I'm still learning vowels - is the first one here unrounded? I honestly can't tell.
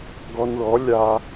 no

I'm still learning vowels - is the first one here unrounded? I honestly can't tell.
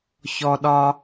no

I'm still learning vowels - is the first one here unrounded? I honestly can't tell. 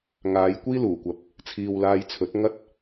yes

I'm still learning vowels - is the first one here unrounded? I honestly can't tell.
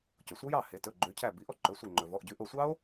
no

